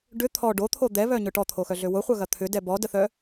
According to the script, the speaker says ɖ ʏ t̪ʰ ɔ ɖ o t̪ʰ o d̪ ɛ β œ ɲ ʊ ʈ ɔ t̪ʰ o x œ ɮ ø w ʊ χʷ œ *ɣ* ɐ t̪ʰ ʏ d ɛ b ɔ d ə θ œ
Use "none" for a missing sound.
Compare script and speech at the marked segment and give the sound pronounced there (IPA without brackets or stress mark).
ɣ